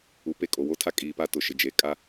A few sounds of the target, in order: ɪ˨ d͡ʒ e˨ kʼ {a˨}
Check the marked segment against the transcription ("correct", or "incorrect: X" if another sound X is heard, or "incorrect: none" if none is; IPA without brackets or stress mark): incorrect: a˦